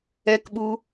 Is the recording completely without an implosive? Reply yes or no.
no